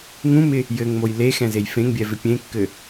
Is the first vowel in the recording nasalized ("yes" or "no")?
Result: yes